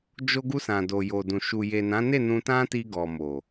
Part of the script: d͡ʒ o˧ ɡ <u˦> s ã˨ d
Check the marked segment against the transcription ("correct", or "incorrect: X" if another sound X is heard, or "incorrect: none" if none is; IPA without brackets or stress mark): incorrect: u˧